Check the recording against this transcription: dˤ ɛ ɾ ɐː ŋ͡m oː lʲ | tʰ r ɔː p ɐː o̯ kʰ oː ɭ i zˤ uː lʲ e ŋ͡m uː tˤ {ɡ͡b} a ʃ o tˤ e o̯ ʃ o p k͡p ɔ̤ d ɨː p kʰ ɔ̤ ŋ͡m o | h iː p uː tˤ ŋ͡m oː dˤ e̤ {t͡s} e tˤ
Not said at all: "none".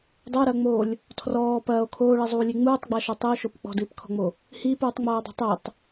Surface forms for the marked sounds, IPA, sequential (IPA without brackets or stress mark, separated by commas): ɡ͡b, tˤ